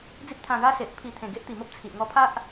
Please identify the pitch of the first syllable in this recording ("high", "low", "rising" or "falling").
high